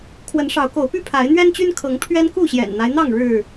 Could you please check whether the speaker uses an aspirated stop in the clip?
yes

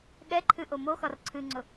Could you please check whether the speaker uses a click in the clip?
yes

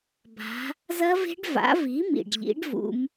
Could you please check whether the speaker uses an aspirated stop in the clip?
no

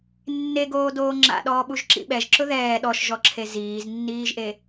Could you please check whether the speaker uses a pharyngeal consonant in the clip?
no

